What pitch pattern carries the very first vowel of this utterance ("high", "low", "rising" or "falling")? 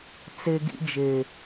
high